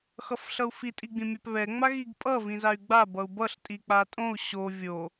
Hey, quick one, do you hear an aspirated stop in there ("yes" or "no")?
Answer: no